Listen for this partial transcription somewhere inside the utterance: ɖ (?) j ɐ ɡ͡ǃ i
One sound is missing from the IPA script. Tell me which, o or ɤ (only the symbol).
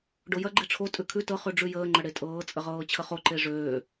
o